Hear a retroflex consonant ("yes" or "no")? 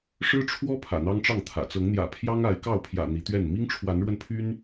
yes